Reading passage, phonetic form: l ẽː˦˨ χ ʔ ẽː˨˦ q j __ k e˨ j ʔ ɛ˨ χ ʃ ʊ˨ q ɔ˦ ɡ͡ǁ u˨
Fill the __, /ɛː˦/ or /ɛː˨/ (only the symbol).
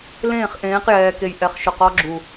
ɛː˨